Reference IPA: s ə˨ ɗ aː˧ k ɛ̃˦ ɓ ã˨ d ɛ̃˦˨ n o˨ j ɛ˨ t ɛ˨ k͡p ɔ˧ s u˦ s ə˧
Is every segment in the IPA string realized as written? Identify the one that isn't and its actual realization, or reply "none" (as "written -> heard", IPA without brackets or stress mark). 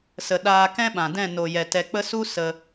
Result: ɔ˧ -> ə˧